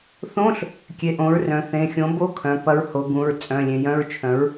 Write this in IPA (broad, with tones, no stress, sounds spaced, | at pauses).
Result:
θ õ˧˥˧ ɬ | kʲ e˩˧˩ ʔ õ˩˥ ɹ r œ̃˩˧ θ ẽ˩˧˩ xʲ õ˩˥ b o˧˥˧ kʰ œ̃˩˧˩ p ɐ˧˥ ɹ h o˩˧ ɡ ũ˩˧˩ ɹ t͡sʼ œ̃˩˧˩ lʲ ẽ˩˧ j œ̃˧˥˧ ɹ t͡ʃʰ œ̃˩˥ ɹ